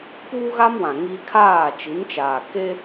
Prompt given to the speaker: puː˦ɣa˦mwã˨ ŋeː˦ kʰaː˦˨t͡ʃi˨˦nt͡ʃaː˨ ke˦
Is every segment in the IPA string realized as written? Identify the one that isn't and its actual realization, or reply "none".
eː˦ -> iː˦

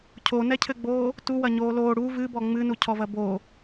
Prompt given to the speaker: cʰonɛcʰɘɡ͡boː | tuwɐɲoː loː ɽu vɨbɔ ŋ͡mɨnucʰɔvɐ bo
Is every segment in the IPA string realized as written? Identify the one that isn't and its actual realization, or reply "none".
none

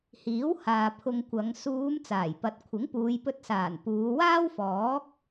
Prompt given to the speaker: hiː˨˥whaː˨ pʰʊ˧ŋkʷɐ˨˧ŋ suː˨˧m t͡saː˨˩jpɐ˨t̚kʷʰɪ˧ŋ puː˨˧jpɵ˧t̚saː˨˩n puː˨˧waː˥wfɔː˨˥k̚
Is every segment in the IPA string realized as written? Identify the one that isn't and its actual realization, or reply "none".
ɪ˧ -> ɪ˨˥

